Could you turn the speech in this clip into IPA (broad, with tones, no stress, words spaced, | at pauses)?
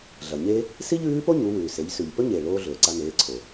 ɮɐ˩ɲe˥ | si˥ʎʉː˧˥po˥ɲu˩˧ wʉː˩se˩˧ʎ sʉ˩ʎ pɵ˥ɲeː˩ɭoː˧ ɮɵː˩ǀa˧ neː˩˧ǀʰo˩